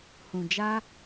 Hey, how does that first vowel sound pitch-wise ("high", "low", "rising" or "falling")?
low